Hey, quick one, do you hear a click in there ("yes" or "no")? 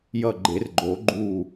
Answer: yes